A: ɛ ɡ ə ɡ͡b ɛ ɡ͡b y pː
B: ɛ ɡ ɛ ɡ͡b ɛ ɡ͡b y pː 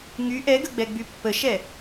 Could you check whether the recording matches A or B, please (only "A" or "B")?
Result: A